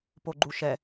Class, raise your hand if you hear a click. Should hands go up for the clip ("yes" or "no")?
yes